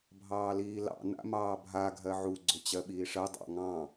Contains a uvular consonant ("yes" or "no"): no